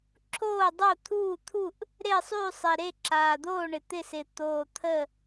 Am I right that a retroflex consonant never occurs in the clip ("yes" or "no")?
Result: no